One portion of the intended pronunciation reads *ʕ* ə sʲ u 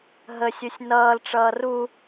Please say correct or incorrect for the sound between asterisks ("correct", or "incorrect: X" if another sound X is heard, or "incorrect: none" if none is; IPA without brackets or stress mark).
incorrect: ɦ